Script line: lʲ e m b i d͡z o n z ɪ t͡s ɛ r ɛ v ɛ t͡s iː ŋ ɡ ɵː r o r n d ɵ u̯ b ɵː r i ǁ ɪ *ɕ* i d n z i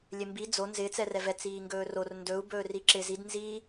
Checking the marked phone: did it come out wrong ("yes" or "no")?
yes